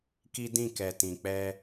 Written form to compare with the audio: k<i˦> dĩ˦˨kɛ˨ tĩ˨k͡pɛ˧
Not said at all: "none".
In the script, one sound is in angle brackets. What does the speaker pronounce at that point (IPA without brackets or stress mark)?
i˦